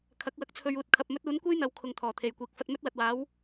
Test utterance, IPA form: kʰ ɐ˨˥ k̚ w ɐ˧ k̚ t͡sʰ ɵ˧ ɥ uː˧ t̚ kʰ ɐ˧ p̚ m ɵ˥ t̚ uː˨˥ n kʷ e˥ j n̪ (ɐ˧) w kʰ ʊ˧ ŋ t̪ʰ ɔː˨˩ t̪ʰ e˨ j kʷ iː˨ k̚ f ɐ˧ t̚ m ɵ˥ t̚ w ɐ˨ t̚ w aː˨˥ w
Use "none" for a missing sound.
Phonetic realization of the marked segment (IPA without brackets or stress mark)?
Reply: ɐ˨˧